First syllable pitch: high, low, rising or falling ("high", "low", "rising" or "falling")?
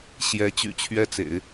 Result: rising